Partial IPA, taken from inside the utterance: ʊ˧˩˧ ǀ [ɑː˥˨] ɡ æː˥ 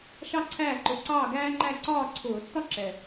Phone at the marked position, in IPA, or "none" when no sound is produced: ɑː˥˨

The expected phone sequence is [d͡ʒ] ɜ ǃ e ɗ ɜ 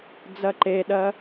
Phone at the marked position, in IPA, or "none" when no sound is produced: d͡z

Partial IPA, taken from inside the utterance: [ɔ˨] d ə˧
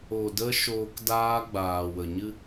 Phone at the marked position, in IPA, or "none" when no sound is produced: o˨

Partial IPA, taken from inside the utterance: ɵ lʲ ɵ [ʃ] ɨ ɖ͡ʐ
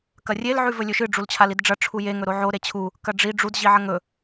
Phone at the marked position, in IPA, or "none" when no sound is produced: ʃ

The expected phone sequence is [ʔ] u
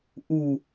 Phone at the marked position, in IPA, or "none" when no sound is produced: ʔ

